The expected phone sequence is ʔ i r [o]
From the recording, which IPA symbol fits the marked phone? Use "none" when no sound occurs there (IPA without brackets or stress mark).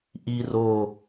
o